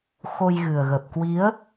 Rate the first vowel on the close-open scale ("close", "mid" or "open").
mid